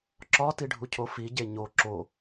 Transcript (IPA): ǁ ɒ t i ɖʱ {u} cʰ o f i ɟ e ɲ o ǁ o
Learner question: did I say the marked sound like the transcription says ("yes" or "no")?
yes